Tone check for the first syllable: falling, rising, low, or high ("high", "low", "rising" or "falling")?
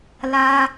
high